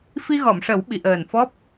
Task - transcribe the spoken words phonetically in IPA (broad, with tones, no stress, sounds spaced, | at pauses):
f i˧ ɣ ɔ˨˩˨ m ʂ ə˨˩˦ w ɓ i˨˩˨ ʔ əː˨˩ n f ɔ˦˥ p̚